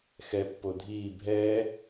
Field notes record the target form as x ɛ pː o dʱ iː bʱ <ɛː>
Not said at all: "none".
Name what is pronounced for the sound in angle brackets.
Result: ɛː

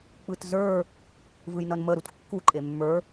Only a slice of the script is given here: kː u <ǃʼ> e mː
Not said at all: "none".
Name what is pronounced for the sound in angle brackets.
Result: ǃʼ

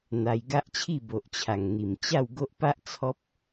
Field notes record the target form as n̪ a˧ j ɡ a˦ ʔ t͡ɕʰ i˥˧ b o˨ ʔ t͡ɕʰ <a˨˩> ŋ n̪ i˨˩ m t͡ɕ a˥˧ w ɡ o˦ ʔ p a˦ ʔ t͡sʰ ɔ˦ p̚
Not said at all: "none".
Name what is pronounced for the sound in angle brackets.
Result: a˨˩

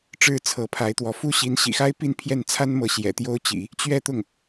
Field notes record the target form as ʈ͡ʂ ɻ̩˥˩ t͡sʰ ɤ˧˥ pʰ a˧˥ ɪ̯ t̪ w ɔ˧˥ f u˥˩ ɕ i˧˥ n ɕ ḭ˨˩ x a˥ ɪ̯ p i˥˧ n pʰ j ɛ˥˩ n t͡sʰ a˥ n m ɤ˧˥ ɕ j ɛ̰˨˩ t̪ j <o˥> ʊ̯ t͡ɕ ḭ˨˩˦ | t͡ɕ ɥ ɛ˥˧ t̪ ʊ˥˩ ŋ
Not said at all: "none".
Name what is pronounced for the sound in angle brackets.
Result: o˥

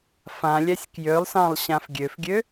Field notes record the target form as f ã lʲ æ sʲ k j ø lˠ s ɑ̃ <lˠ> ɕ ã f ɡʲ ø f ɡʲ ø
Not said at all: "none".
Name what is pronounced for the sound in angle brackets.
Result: lˠ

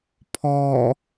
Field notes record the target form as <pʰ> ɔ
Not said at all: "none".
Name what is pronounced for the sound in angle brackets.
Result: pʰ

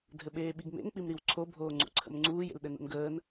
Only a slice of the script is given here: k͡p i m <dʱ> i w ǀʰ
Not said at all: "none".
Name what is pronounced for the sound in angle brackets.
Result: ɾ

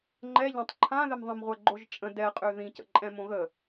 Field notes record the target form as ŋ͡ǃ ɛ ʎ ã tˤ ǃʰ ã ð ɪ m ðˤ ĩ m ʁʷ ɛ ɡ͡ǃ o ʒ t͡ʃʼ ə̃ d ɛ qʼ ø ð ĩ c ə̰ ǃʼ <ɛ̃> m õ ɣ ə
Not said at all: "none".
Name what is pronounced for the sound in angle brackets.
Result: ɛ̃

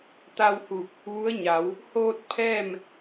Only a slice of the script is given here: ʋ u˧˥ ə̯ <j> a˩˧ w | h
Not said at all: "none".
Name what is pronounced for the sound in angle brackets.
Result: ɲ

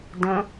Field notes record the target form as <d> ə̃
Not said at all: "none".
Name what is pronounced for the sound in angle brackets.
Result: d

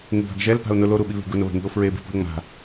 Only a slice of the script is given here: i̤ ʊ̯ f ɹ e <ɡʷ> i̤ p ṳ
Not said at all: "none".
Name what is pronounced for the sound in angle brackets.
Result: b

